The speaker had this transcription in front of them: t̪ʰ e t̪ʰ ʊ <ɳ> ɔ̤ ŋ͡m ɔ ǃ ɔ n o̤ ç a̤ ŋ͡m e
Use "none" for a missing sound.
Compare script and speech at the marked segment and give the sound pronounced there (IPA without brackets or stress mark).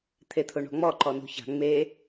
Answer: ɳ